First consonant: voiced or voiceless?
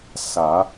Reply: voiceless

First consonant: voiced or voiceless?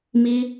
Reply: voiced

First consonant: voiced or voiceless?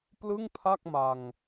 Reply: voiceless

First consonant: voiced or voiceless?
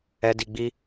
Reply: voiced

